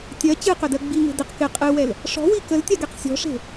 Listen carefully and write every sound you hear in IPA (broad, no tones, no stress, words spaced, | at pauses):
tʲɜ t͡ɕɨqʏdɜ ɡ͡biŋe̤ dɪq kɪ qʼɨwɛl | ʂɔ̤wi kəltʲaɡɛq sʲɔ̤ʂe̤